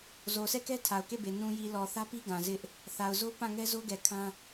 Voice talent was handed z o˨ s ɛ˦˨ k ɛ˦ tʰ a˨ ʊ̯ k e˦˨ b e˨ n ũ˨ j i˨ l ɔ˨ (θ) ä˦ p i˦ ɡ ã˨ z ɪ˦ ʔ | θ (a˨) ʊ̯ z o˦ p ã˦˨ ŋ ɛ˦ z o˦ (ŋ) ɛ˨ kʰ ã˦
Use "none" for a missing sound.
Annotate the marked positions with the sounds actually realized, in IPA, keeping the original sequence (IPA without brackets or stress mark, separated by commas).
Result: θ, a˨, ɡ